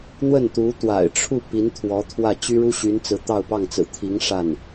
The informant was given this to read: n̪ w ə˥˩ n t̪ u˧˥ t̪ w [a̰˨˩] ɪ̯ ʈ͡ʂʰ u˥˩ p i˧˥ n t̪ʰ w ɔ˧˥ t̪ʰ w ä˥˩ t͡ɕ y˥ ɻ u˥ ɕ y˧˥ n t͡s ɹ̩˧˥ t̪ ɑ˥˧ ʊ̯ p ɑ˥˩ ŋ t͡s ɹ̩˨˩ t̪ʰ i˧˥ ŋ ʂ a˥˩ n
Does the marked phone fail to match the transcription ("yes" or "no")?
no